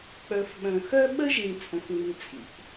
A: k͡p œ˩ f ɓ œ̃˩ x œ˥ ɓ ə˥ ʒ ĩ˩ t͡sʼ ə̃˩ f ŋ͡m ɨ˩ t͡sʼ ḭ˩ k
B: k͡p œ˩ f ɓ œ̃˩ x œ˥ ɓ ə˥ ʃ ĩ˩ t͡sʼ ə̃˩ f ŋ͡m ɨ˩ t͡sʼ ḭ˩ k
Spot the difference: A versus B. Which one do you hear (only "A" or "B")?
A